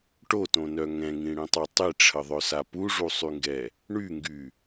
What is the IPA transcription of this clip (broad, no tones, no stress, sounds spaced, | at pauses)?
ʈ o t õ n œ ŋ ɛ̃ ŋ ĩ ɽ ĩ tˤ a tˤ i ʈ͡ʂʰ ə ðˤ œ s a p u ʐ u sˤ y ŋ ɡ ɛ | ɳ y ŋ ɡ y